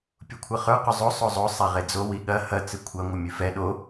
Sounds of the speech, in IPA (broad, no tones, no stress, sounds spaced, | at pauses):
pʲ u kʷʰ ɐ χ ə˞ q o zˤ o sˤ o zˤ o sˤ ɛ ʁ e d͡z o w i ɠ ɐ h ɐ t͡s ɨ kʷʰ ɐ ŋʷ ɐ mʲ ʉ f ɛ ɗ o